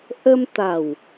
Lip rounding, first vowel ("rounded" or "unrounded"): unrounded